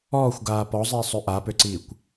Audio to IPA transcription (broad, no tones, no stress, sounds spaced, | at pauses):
ɔː xʷ ɡ aː p ɔ zˤ iː sˤ ø ʔ a p ø ǀ iː kʷ